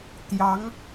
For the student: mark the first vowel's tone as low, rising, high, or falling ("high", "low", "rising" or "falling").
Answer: rising